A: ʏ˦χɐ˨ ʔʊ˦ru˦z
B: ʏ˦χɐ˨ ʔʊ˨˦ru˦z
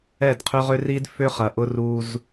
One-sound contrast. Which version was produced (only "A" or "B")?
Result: A